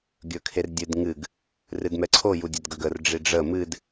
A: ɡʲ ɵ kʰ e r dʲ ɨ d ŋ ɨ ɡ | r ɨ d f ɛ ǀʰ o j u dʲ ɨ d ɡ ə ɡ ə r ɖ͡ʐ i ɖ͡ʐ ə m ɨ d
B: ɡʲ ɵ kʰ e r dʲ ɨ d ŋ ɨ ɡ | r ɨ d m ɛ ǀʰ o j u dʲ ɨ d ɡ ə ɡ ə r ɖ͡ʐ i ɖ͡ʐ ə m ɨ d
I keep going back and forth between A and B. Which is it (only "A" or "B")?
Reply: B